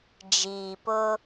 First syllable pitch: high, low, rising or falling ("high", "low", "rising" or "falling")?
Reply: low